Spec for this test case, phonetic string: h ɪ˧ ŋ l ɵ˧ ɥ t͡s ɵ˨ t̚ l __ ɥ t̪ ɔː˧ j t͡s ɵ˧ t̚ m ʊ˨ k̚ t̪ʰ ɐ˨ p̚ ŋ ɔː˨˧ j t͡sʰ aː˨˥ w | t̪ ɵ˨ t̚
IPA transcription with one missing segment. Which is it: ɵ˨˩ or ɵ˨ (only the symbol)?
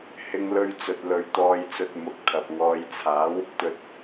ɵ˨